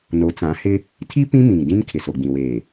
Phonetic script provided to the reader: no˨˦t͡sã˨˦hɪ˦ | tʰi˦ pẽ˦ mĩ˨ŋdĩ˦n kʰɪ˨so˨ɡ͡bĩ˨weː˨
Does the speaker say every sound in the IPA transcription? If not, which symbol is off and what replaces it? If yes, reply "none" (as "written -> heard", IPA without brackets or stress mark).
ẽ˦ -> ĩ˦